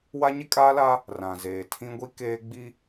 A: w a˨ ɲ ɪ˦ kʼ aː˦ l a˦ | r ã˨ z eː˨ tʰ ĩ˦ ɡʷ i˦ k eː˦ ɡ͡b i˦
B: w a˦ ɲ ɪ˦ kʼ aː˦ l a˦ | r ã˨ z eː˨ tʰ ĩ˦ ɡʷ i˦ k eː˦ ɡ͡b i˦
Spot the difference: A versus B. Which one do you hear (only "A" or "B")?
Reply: B